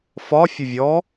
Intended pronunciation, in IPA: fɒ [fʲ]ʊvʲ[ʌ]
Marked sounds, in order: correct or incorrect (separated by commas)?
correct, incorrect